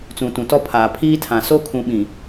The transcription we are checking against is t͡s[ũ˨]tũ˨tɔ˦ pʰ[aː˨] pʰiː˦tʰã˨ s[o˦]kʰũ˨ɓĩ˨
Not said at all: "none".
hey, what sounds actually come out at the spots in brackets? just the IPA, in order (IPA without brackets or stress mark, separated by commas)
ũ˨, aː˨, o˦